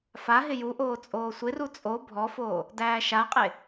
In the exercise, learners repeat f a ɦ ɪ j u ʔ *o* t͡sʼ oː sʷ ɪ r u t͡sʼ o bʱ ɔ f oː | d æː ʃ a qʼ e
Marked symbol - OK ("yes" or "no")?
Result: no